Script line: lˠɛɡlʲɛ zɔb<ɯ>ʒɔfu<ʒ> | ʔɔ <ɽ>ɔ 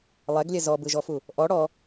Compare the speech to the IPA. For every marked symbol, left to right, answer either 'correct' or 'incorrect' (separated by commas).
correct, incorrect, correct